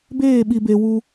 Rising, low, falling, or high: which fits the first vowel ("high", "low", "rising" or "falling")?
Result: falling